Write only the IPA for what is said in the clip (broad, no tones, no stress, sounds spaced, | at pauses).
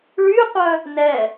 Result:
ɭ y qʷ œ | n ɛ